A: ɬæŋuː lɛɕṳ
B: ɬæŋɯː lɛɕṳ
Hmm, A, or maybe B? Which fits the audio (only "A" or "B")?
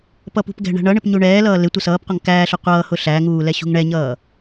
A